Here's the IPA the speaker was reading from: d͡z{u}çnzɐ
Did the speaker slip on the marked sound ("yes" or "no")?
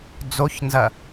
yes